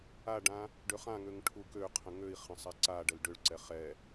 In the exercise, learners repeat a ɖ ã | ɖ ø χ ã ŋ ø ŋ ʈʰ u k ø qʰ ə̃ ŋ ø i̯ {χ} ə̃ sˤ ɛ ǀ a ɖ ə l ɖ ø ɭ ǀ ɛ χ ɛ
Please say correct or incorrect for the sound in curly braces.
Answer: correct